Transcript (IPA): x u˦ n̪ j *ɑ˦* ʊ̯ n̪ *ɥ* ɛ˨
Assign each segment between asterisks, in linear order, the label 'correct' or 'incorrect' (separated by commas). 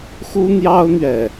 correct, correct